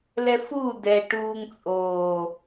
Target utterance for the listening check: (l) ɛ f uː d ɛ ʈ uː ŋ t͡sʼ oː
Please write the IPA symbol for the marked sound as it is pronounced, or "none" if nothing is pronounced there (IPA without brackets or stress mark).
l